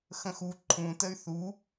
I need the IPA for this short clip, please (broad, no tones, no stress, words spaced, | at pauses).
xə̃xu ǃʰũtəy̯ θu